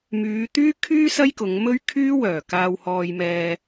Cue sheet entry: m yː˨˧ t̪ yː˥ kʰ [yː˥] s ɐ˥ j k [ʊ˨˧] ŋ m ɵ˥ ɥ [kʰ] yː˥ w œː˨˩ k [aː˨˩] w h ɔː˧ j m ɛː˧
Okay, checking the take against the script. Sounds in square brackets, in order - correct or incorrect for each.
correct, correct, correct, incorrect

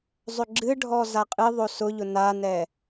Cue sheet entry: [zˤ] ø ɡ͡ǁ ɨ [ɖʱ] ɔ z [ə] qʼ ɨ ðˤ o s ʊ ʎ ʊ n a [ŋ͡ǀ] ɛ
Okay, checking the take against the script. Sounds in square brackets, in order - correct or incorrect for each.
correct, correct, incorrect, incorrect

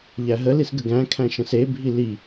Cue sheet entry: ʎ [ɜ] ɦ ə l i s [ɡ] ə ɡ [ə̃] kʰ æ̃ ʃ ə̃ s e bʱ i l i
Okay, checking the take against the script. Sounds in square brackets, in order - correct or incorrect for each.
incorrect, correct, incorrect

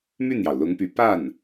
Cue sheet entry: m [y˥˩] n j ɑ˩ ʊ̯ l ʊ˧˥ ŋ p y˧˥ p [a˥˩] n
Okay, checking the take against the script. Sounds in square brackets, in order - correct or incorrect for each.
correct, correct

